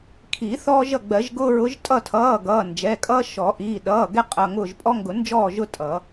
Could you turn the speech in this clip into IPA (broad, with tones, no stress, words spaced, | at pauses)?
kʰiː˨˩˦θɔː˦ʒʌ˦˨ ɡ͡bɜ˨˩˦ʒɡʊː˦ ɹʊ˨˦ʒtʼʌ˦˨tʰʌː˩˧˩ ɡʌː˩˧˩nd͡ʒɛ˩˧˩kʼʌː˦ ʃɔ˨˩˦ʔiː˩˧˩ ɗʌː˩˧˩ɡɛ˦ qʼʌ˩˧˩ŋʊː˦˨ʒ pʼɔ˦ŋɡʊ˨˩˦nd͡ʒɔː˦˨ ʒʊ˦ tʼʌ˨˩˦